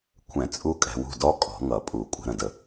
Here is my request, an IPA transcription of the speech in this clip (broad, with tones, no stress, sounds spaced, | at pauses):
kʷʰ ɛ̃˨˩˦ t͡sʼ u˦˥ kʼ ɛ̤˨˦ w ṳ˥˨ d ɔ˦˥ kʼ ɔ̤˨˩˦ ŋ ʌ˨˩˦ pʼ u˨˩˦ kʷʼ ə̤˨˦ ɾ ə̃˨ d ə˨